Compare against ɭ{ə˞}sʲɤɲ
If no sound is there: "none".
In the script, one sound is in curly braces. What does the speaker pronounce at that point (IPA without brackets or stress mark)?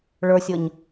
ə˞